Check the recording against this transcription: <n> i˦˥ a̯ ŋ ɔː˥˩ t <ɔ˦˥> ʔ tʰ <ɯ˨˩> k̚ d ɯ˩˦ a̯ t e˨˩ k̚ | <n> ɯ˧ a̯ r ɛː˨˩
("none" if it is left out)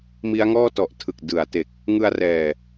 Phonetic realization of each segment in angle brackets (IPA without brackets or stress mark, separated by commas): m, ɔ˨˩, ɯ˨˩, ŋ